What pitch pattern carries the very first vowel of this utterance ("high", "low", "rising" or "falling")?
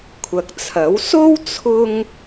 low